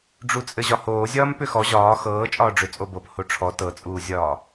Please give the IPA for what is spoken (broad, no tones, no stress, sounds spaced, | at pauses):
ɖ͡ʐ u t͡sʼ ɘ ʑ ɒ h oː zʲ ɒː m p ʏ x ɔ ʑ ɒː x ɤː t͡ʃʼ ɒː ɖ͡ʐ ʏ t͡sʼ o b ɤ p h o ʈ͡ʂʰ ɔ t ɤ t͡sʼ uː zʲ ɒː